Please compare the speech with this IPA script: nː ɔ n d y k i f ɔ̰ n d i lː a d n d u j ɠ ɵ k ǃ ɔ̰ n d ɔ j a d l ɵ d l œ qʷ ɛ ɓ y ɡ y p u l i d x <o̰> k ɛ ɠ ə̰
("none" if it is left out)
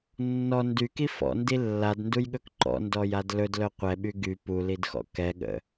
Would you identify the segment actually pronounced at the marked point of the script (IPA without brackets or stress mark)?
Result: ɔ̰